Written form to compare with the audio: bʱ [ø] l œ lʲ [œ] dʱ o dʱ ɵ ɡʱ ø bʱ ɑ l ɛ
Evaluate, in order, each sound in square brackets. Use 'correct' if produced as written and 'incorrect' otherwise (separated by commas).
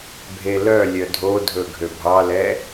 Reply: incorrect, correct